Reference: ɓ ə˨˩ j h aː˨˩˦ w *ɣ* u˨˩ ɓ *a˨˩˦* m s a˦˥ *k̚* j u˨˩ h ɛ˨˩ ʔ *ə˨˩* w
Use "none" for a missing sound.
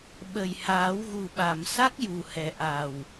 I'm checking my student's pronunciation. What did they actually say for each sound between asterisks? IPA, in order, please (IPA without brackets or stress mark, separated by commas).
ɣ, a˨˩˨, k̚, a˨˩